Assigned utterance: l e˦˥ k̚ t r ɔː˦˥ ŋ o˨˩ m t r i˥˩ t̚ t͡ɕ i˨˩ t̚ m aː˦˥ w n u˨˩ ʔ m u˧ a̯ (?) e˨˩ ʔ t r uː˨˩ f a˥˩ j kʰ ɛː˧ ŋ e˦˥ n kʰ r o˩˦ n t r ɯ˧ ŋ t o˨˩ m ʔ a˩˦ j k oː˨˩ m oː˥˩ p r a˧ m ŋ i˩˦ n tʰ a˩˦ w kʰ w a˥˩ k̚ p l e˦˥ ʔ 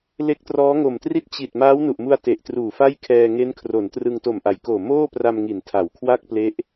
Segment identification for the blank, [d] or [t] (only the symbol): t